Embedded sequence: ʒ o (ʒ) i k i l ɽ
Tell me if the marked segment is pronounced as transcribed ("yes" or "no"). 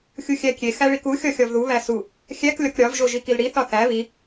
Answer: yes